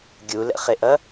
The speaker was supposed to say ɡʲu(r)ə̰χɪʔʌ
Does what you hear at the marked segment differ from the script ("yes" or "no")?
yes